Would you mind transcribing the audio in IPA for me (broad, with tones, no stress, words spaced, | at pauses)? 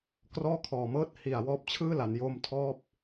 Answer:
krɔː˥˩kʰɔː˨˩mɤː˥˩t̚ hi˨˩a̯ wɔː˦˥p̚t͡ɕʰɯː˥˩la˩˦n jo˧mtʰɔː˦˥p̚